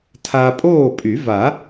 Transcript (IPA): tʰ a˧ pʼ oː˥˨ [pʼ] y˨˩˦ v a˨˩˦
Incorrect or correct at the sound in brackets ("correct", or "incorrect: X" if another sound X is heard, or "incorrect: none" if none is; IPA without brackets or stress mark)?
correct